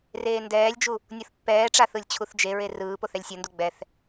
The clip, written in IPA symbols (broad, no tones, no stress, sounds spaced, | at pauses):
r eː n d ɛː lʲ d͡ʒ u | nʲ o θ pː ɛː ʈ͡ʂ a θ ɯ lʲ t͡ɕʰ u θ d͡ʒ e ɹ e r ɯː p o θ ɛ lʲ sʲ o n d u ɡ͡b ɛ θ